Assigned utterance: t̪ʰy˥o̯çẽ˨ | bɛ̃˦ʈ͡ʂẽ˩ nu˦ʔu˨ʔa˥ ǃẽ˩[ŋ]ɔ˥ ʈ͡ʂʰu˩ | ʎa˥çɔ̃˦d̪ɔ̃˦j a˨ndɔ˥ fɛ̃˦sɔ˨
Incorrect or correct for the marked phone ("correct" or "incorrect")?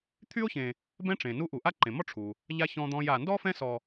incorrect